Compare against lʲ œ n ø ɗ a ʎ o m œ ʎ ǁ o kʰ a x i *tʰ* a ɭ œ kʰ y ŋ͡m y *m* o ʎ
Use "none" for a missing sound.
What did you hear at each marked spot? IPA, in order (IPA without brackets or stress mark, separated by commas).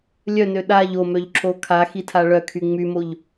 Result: tʰ, m